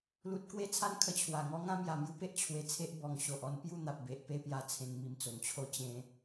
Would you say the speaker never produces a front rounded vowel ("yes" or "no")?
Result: yes